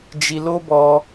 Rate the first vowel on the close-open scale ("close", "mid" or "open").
close